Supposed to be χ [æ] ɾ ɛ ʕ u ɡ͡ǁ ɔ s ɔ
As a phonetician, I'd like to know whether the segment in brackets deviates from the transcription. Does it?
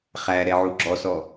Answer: no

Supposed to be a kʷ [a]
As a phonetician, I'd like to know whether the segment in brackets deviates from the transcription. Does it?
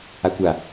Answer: no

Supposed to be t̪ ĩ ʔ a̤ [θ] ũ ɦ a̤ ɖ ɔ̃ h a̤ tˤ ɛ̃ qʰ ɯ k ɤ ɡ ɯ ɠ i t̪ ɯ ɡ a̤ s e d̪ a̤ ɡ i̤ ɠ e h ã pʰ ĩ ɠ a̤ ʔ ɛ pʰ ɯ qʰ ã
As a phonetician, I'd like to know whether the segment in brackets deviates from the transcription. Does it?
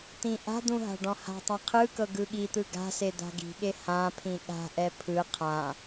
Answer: yes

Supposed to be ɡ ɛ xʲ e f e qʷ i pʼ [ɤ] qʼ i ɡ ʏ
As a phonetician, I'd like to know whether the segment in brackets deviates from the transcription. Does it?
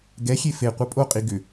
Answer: yes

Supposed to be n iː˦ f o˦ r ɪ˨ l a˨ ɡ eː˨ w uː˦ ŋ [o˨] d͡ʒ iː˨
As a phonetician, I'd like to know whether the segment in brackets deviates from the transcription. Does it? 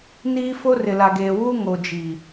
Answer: no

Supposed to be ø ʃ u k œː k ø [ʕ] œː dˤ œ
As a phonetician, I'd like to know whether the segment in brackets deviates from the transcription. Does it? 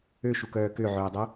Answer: no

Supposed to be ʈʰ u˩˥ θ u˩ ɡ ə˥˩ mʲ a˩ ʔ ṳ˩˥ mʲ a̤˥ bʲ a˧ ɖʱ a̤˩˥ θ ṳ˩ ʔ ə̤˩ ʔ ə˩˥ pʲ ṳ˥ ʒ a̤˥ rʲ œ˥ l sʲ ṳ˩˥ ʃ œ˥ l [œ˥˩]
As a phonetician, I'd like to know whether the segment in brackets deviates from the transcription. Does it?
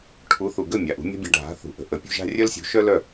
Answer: no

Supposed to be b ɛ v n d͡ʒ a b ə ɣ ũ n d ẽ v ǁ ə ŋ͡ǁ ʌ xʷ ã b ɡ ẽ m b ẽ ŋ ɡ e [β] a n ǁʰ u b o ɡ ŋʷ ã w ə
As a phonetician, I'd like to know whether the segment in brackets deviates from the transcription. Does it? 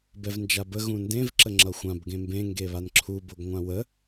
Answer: no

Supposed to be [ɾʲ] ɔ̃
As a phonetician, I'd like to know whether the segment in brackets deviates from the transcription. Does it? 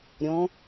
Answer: no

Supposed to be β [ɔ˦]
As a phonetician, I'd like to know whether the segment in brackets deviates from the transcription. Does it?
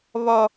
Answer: no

